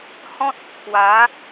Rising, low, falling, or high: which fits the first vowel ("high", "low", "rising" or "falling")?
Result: high